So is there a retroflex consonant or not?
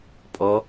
no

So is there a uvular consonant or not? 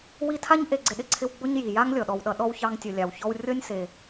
no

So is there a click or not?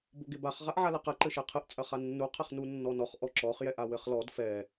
yes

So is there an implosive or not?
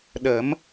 yes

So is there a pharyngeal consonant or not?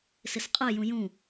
no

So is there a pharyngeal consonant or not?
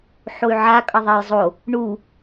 yes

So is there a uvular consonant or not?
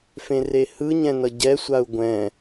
no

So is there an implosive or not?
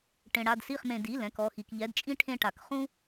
no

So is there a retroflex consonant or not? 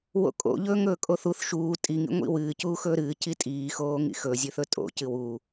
no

